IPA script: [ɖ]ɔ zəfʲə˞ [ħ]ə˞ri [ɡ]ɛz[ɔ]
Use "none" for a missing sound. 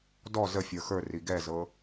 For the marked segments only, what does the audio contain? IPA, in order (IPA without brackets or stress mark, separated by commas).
d, x, ɡ, ɤ